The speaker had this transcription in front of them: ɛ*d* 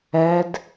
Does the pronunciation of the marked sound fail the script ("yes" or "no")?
no